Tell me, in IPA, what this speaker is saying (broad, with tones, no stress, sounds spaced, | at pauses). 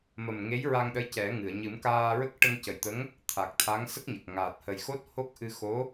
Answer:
m ə˨˩ m ŋ e˧˥ j ɹ a˧ ŋ ɗ ə˧˥ j c ɛ˨˩˦ ŋ ɨ˨˩˨ ə̯ ɲ ɨ˨˩˦ m k aː˧ ɹ ə˦˥ k̚ ʈ ə˧ ŋ c ə˨˩ j t̪ ə˧˥ ŋ | t̪ʰ a˨˩ k̚ t̪ʰ a˧˥ ŋ s ə˦˥ k̚ ɲ ə˨˩ k̚ ŋ aː˨˩ t̚ h ə˨˩ j x o˦˥ t̚ h o˦˥ k̚ ʔ ɨ˧ x o˧˥